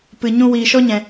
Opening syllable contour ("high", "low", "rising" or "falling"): low